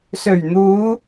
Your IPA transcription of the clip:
s ɵ˨˩ ɥ n̪ uː˨˧

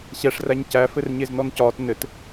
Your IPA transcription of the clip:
ɕ ɛ ʂ r æ ɲ c æ f ɘ r ɲ e z n ɔ n c ɒː t n ɘ t

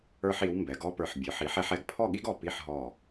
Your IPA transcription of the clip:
ə˞˧ ħ i˩˧ w m b ɛ˩˧ ɡ ɔ˥˧ p ə˞˧˩ ħ bʲ ə˞˩˧ ħ i˩˧ ħ ɛ˧ ħ ɛ˧˩ ɡ pʰ ɔ˥˧ ɠ i˥ ɡ ɔ˧˩ p i˥˧ ħ ɦ ɔ˧˩

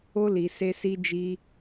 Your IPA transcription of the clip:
o˧ l i˨ s e˧ s i˧ d͡ʒ i˧

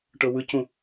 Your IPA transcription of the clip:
ʈ ɤ w ɯ c ũ

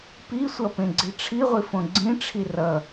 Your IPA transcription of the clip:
p i sʷ ʌ p ẽ ɡ͡ǀ i ʈ͡ʂʰ i ʁʷ i f õ ɡ͡ǀ ĩ ʈ͡ʂʰ i r ʌ

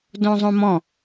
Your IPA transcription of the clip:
d õ zˤ õ m ɔ̃

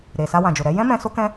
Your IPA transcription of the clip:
ɾ e˨ s a˧ w ã˨ d͡ʒ o˨ ɾ ɛ˧ j ɛ̃˦ m ɛ̃˧ s o˦ k ɛ̃˦

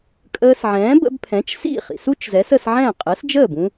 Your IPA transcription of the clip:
kʼ əː˧ s ʕ ɛ̃ː˩˥ b ə̰˧ b pʰ ɛ̃˩˥ t͡ʃ s ḭ˥˩ χ ḭ˩ s u˥ t͡ʃ z ɛ˩˥ s ə˧ s ʕ ɛ̃˥˩ qʼ əː˩˥ s d͡ʒ əː˥˩ b ũ˥

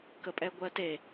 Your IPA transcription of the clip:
k ə pʼ ɛ ɡʷ ɜ t e

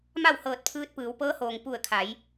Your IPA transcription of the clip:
m a˥˨ w h ɤː˧˩ t̚ pʰ ɯː˧ t̚ p ɯː˩˧ w p ɤː˧˥ h oː˩ ŋ p u˧˩ ə̯ kʰ a˩˧ j

